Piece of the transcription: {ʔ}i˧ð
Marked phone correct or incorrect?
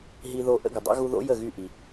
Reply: incorrect